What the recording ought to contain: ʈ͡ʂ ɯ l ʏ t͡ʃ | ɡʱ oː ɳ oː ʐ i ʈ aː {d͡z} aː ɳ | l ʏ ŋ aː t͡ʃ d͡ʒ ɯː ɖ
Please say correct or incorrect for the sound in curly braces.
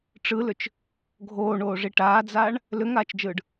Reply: correct